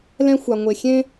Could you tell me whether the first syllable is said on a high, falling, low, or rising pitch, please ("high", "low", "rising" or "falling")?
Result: high